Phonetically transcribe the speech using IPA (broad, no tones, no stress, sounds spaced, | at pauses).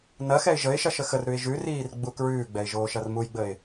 n ɐ x ɛ ɪ̯ ʒ ə ɪ̯ ʃ ɐ ʃ ə x ə r ɾ ʉ ɪ̯ ʒ ʉ r iː r ɡ͡b u k ɹ ʉː ɡ͡b ɛ ɪ̯ ʒ oː ʃ ɐ r m u j ɡ͡b ə ɪ̯